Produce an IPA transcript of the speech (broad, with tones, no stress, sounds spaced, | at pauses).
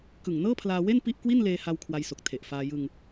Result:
k ɯ˨˩ ŋ n ɤː˥˩ pʰ l aː˧ w e˥˩ n p i˥˩ ʔ k w i˥˩ n l eː˧ h a˧ w kʰ w a˧ j s o˨˩ k̚ tʰ e˨˩ ʔ f aː˧ j ɯ˧ ŋ